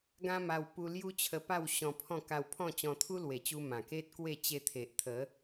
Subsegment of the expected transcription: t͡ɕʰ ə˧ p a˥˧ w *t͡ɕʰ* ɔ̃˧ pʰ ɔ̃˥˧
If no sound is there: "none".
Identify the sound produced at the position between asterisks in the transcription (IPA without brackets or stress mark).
ɕ